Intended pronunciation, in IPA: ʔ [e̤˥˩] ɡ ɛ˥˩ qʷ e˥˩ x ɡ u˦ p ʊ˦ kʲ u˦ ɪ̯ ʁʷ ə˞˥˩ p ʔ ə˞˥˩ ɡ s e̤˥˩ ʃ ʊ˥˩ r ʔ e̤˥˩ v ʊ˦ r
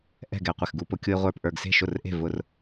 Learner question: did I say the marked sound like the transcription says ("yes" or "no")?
no